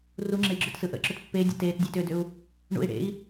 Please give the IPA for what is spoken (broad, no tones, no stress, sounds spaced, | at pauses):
r u ŋ͡ǁ e i̯ ɡ͡ǁ ʏ t s ɯ ʔ ə̰ ǁ ʏ t pː e dʲ ə̰ t eː t dʲ eː t ʏː d ʏ u̯ | ɳ ṵ i̯ ɽ ḛ i̯